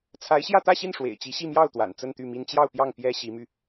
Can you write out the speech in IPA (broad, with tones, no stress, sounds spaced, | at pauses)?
t͡sʰ a˧˥ ɪ̯ ɕ j ä˥˧ t̪ ä˥˧ ɕ i˥˩ n ʂ w ḛ˨˩ ɪ̯ t͡ɕ i˧˥ ɕ i˥˧ m j ɑ˥˩ ʊ̯ t̪ w a̰˨˩ n t͡s ə˥˧ n t̪ y˥˩ m i˥ n t͡ɕ j ɑ˥˧ ʊ̯ p j ɑ˥˩ ŋ p j ɛ˥ ɕ i˧˥ m y˧